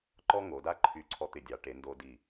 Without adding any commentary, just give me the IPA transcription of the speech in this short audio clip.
ǃ ɔ˥ ŋ o˩˧ d a˥ ǃʰ y˧˩ ǀʰ ɔ˧ t̪ ɪ˧˩ dʲ ɑ˩˧ ʈ e˩˧ n d o˧ d i˧˩

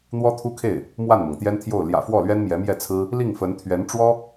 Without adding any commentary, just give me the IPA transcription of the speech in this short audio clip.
n̪ w ɔ˥ t̪ʰ u˥ kʰ e˥˩ ɪ̯ | m w a˥˩ n m ɤ˩ ŋ t̪ j ɛ˥ n t̪ʰ j o˥˩ ʊ̯ l j ä̰˨˩ f w ɔ˥˩ l ɥ ɛ˥ n m j ɛ˧˥ m j ɛ˥˩ t͡sʰ ɹ̩˥ | l i˥˩ ŋ f ə˧˥ n t̪ʰ ɥ ɛ˧˥ n ʈ͡ʂ w ɔ˥

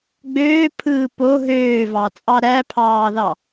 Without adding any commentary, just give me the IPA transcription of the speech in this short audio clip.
ɡ͡b øː pʰ ɯː p o ɦ øː v ɑ t͡sʼ ɑ ɾ æ pʰ ɑː ð ɑ

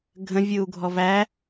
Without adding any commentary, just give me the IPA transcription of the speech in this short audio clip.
ɡʱ ə̃ vʲ ɯ u̯ ɡʱ ɔ v æ

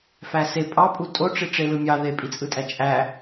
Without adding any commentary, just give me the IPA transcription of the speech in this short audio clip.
f æ s e pʼ ɑ pʼ u tʼ o ʈ͡ʂ i ʈ͡ʂ e l ɯ mʲ ɑ ð e pʼ i t͡sʼ ɯ tʼ æ t͡ʃʼ æ

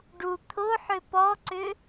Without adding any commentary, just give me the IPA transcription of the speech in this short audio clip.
ɖ u t̪ʰ o ħ ʏ p ɔ ǀ ʏ

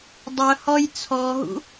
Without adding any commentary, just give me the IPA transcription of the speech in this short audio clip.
dˤ œ h ɔ j t͡sʰ ɔ ɦ ṵ

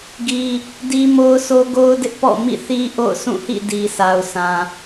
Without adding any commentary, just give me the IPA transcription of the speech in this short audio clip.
ɡ i˦ | d i˦ m o˦ ʊ̯ sʰ o˦ ɡ o˦ ʊ̯ d ɪ˦ ʔ p ɔ̰˦˨ m ḭ˦˨ θ i˦ ʔ o̰˦˨ ʊ̯ s ũ˦˨ h ḭ˦˨ d i˨ s a˨ ʊ̯ s ã˨

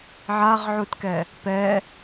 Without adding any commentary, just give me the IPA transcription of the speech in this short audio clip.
ʕ a ʁ ʕ u t k ɛ | p ɛ

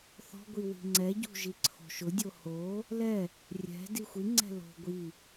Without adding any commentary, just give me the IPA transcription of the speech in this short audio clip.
θ ɔ̤ ɡʷ i w i̤ ŋ͡ǀ ɛ ɟ ṳ ʒ i ǀʰ o̤ ʃ ʊ dʲ o h o | l ɛ | rʲ ɛ̤ d i xʷ i ŋ͡ǀ ɛ̤ l o̤ ɡʷ i

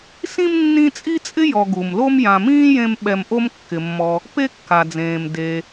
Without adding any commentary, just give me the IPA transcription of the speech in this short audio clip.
s ĩ˥ m nː ĩ˦ t͡sʼ i˥ t͡sʼ ɪ˥ j ɔ˨ ɡ u˩ m l o˥ m j ã˨ m ĩː˥ j ẽ˦ m ɓ ɛ˨ m ʔ o˦ m kː ɪ˩ mː ɔ˨ | p e˥ kː a˩ d͡z ẽː˩ m d e˩

